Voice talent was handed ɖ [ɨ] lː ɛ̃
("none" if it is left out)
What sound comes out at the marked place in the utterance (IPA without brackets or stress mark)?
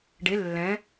e